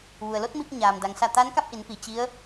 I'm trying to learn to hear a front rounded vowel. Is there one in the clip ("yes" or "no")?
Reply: no